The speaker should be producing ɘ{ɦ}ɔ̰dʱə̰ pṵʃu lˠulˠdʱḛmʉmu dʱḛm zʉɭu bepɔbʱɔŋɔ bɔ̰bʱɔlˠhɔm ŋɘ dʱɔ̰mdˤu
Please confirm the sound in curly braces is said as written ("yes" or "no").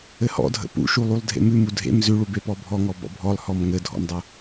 no